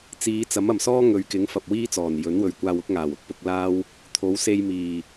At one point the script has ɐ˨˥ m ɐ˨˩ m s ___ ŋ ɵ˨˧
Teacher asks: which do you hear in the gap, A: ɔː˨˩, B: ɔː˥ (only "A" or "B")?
B